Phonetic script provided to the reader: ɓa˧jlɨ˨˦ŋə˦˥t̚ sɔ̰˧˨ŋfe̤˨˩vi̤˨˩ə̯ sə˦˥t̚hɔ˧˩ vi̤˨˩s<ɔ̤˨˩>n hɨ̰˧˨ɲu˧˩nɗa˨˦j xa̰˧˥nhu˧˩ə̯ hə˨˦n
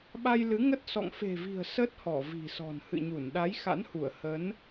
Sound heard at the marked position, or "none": ɔ̤˨˩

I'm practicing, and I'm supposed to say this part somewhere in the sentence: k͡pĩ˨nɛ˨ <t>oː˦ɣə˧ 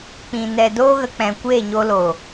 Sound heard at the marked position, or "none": d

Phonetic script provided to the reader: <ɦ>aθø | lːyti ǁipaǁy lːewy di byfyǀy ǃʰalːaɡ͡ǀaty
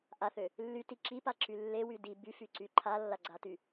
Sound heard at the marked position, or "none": ʔ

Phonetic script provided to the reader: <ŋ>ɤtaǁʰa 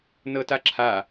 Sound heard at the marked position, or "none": n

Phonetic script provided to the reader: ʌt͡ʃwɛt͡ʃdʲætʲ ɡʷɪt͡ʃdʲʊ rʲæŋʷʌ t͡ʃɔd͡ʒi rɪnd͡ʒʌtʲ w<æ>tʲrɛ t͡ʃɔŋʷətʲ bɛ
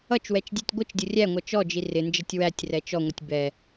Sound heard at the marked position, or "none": æ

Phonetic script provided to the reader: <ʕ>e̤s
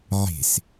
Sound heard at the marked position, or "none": ʕ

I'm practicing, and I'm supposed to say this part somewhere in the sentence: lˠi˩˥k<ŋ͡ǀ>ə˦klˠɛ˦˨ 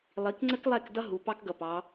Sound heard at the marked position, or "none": ŋ͡ǀ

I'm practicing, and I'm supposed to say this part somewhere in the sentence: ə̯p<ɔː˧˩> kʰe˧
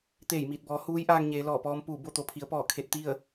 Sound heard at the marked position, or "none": ɔː˧˩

